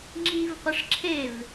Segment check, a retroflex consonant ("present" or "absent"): present